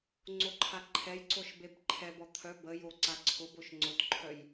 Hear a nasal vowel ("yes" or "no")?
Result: no